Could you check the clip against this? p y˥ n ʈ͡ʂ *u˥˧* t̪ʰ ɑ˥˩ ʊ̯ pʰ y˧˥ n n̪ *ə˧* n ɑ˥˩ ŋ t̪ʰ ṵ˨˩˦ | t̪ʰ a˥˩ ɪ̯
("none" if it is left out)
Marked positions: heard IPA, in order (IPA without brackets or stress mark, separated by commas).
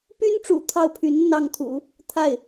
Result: ṵ˨˩, ə˧